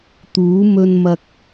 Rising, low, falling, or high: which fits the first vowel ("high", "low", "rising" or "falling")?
rising